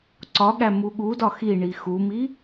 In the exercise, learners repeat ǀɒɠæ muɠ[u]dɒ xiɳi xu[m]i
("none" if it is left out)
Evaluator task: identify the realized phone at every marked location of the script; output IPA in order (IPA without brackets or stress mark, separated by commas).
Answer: u, m